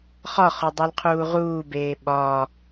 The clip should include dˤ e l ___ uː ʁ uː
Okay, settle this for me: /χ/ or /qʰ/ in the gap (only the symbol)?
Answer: qʰ